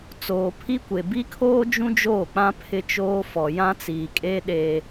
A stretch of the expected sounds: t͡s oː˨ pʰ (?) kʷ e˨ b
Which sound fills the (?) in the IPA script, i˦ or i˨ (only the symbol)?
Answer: i˦